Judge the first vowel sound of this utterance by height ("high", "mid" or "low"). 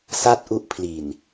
low